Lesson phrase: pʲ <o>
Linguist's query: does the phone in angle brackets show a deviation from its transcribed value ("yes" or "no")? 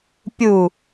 yes